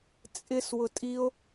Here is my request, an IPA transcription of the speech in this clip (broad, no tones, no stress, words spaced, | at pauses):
t͡sʼɪs wʊtʼio̯